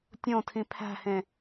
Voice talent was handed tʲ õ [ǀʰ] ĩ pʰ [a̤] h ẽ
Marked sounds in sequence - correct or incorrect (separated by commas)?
incorrect, incorrect